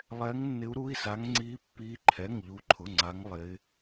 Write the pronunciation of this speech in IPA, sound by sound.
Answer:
lˠɛː˦˥ŋnːɪ˦˥u̯ɾu˧˥˧i̯sa˦˥ŋ ŋ͡ǀiː˦˥pːiː˦˥ǃʰɛ˧˥˧ŋ ʎu˦˥ǃʰʊ˧˥˧ŋ͡ǀa˦˥ŋ lˠɪː˦˥

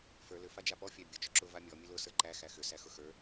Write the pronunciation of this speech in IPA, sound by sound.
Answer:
fə˞ lʏ fad͡ʒapɔ fʲæbʲʊ t͡ʃʏǁʊ vamʲɔ mʲəlʊ sə˞ǃæ xæxʏ sæxʊxə˞

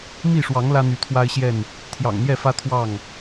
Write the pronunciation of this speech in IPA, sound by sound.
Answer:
mi˥˨ʂwɑ˨˦ŋ lä˦n̪y˨˦t̪ʰwa˦ɪ̯ɕjɛ˥˨n | t̪ʰjɑ̰˨˩ŋn̪jɛ˥˨fä˦ t̪ʰwɑ˥˨ŋ

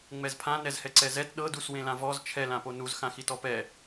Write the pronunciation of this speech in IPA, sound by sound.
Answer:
ŋ͡mɛzpʰã nɛzhɛǀɛzɛt ɗɤ duswẽlãvɔz t͡ʃʰɛl ãponuz xãxitɔpɛ

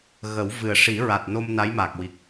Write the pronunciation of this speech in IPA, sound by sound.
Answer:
ɣə˨˩˦w vɨ˨˩ə̯ʂi˨˩˦ ɹa˨˩t̚no˧m na˧˥jma˨˩k̚wi˨˩k̚

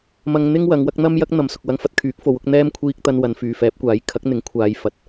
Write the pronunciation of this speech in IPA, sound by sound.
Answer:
mɐ˧ŋ n̪ɪ˥ŋwɐ˨˧ŋ wɐ˥k̚ n̪ɐ˥mjɐ˥k̚ n̪ɐ˨msʊ˨k̚wɐ˧ŋ fɐ˧t̚kʰyː˨˥k̚fo˨˥w ʊ˧k̚n̪ɛː˥m kʷʰiː˧k̚ t̪ɐ˧nwɐ˨˧n fyː˨fɛː˨˥p̚kʷaː˨˥j kʰɐ˨˥k̚n̪ɪ˨˥ŋ kʷʰaː˨˧j fɐ˨t̚

